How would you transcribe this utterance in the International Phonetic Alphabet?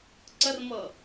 ǀərmɤ

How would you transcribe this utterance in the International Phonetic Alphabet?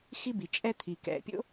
xi˥bi˩ t͡ʃʼɛ˥t̪ʰi˩ kɛ̰˩pʲo̰˥

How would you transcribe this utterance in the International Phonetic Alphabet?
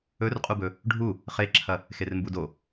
ɵrqʼubɵ | ɖʱu | χeǁʰɐ | xermbudo

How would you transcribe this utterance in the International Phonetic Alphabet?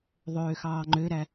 ðˤøːxɑːŋ͡ǃøɾæ

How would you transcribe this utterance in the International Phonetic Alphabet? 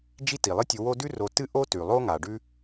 d͡ʒi˦ti˩lˠɨ˦tʲɨ˨ wo˦dʉ˥ro˨ tɨ˦ʔo˦ tʉ˩lˠo˦ ŋa˩ɖʉ˥

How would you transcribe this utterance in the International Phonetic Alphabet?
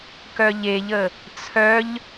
kœʎeʎə | t͡sʰœʎ

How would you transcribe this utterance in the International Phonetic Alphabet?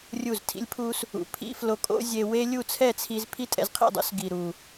rʲu˦˨ztʰḭ˦lʲpʰu˦s | ṵ˨pʰḭ˦ flo˧kʼo̰˦zʲe˧ we˦ lʲu˦˨t͡sʰɛ˦˨t͡sʰi˧z pʰi˦tʼɛ̰˧zqʰḭ˦˨dˤṵ˦s ɡi˨ɾu˨

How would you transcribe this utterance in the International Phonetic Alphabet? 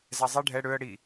zɛzˤi ɖʱɛ ɽøə̯ ɽi

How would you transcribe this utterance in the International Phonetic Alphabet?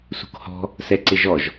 sṳkhɔ̤ | sɛǀɪʒɔʒ

